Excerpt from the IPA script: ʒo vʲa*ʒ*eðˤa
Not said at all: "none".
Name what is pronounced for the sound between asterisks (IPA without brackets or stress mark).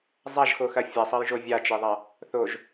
t͡ʃ